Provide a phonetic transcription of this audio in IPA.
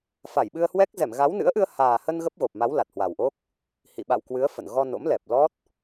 f a˧˩ j ɓ ɨ˧ ə̯ h w ɛ˦˥ k̚ z ɛ˧˩ m ɣ a˨˦ w n ɨ̰˧˥ ə̯ ʔ ɨ˧ ə̯ h aː˨˩ h ə˧ n ɣ ə˦˥ p̚ ɣ o˨˩ p̚ m a˨˦ w l a˨˩ t̚ h w a˨˩ w ʔ o˦˥ k̚ | h ḭ˧˨ ɓ a̰˧˨ w k w ɨ˨˦ ə̯ f ə̰˧˨ n ɣ ɔ˧ n o̰˧˥ m l ɛ˨˩ p̚ l ɔ˦˥ t̚

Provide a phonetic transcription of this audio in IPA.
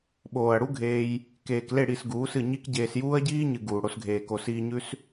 ɓ oː˨ ɐ̯ ɽ u˦ ɡʱ eː˧ j | k eː˨ k l e˦˨ ɽ i˦˨ s ɡ uː˨˦ s ɨ˦˨ ɲ i˦ k ɟ eː˧ s j uː˦ ɐ̯ ɟ iː˦ ɲ ɨ˨ ɡ uː˨ ɽ o˧ s ɡʱ eː˨ k o˨ s iː˧ ɲ ʉ˦ s

